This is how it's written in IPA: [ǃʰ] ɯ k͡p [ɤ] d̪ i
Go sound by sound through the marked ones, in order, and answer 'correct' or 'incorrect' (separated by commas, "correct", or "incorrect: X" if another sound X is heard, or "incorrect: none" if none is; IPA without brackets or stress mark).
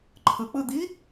correct, incorrect: ɯ